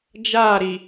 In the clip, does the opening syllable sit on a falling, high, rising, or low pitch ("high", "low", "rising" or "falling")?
falling